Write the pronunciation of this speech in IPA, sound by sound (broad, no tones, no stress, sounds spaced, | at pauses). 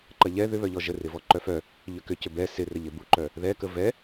ǃ ɐ ʎ ɛ ð ʏ β œ ʎ ɔ ʒ ə r ɪ v ɔ ǃ œ f œ | ʎ ʏ k ʏ c ʏ b ɛ s ɪ r ə ʎ ɪ b u ǃ œ | ð ɛ k ə v ɛ